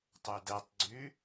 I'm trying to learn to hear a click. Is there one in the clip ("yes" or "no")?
yes